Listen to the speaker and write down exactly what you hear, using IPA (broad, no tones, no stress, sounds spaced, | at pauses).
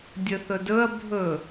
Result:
dʲ ɵ θ ɵ d ɵ ɐ̯ bʱ ɵ